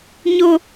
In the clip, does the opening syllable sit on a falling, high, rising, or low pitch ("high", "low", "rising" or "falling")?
high